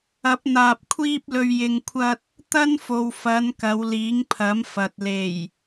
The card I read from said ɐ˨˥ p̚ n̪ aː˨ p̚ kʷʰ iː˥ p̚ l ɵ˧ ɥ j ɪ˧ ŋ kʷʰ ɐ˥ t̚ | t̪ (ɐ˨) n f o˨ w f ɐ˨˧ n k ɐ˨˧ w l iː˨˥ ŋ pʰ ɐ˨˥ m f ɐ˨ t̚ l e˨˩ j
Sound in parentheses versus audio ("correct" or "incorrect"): incorrect